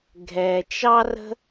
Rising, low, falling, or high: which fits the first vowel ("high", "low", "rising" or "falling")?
low